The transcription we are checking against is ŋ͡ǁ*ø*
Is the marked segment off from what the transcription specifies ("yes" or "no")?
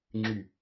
yes